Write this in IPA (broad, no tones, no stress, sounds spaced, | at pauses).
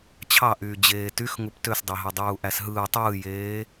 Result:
t͡ɕʰ ɑ ʔ yː d͡ʑ eː t y x ŋ u p t ø s dˤ e ɦ e dˤ uː ʔ æ s ɦ ɯː tˤ ɯː j eː